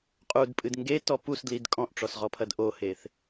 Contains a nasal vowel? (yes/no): yes